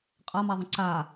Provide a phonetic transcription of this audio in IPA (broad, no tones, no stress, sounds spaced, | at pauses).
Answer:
qʼ a m a ðˤ ə̃ ǀ a